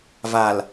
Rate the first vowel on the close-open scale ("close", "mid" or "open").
open